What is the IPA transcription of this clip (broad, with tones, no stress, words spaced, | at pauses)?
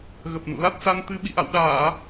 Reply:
ɣə˨˩p̚nṵ˧˨la˦˥t̚sa˧n t̪ɨ˧ ɓḭ˧˨ʔa̰˧˨wɗaː˧˩˨